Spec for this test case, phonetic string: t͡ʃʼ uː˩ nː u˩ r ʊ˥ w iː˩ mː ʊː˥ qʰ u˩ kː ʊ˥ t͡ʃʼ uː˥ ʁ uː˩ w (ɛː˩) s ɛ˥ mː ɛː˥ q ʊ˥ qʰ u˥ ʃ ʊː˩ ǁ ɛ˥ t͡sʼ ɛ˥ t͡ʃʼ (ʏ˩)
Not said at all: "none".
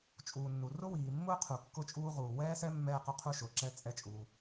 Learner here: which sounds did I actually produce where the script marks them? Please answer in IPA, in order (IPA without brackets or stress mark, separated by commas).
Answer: ɛː˥, u˩